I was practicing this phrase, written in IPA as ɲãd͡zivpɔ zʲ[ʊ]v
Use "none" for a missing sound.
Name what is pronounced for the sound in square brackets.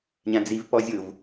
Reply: ʊ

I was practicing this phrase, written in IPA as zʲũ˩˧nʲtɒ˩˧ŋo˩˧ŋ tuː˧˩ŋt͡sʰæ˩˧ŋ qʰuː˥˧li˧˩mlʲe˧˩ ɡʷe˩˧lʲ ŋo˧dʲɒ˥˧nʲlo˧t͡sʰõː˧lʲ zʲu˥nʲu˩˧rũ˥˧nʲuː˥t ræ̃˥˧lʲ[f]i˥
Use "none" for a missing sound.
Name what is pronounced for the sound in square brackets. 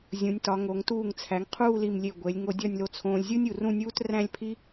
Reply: pʰ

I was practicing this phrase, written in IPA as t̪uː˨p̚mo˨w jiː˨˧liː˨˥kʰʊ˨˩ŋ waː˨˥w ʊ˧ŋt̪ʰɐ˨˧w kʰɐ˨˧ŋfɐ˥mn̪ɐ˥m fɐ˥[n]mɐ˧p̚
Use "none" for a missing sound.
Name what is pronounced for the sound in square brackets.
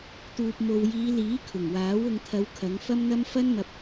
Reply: n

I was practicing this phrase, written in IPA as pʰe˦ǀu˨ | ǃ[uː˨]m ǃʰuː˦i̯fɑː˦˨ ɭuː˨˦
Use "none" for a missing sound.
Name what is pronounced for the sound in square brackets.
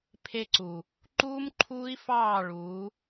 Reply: uː˦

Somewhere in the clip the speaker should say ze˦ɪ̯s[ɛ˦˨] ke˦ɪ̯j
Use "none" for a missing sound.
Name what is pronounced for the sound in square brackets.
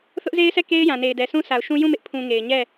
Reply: ɛ˦˨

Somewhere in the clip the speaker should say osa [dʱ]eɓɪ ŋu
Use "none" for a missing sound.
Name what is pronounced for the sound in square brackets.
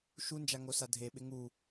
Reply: dʱ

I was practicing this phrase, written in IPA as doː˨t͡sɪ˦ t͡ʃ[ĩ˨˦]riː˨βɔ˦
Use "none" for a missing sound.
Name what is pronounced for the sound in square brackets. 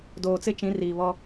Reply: ĩ˨˦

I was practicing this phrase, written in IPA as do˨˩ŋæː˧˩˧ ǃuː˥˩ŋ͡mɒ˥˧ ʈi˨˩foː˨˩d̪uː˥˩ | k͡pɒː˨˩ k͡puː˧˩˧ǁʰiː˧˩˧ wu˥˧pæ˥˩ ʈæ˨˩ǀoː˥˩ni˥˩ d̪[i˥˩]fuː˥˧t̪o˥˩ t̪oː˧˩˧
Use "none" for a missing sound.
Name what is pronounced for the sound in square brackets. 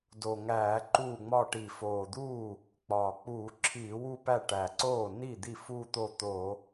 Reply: i˥˩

